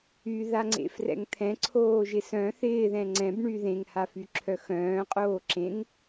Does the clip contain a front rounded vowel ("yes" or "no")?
yes